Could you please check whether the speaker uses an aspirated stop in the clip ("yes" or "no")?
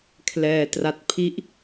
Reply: yes